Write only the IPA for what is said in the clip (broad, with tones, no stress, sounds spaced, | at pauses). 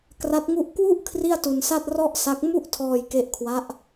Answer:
k r a˦˥ t̚ ŋ u˥˩ ʔ k w u˥˩ ʔ kʰ r i˥˩ a̯ t u˧ n s a˥˩ t̚ r ɔ˥˩ ʔ s a˦˥ k̚ m u˥˩ ʔ tʰ ɔː˧ j k e˦˥ ʔ kʰ w a˦˥ ʔ